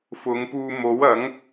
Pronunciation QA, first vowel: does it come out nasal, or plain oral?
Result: oral